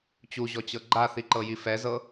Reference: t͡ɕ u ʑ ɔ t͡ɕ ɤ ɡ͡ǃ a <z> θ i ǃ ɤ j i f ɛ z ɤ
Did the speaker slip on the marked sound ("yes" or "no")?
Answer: yes